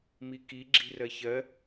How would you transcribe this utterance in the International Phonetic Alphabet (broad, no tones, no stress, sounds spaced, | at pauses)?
m i k i ɡ͡ǁ i̤ r ɜ ç ɜ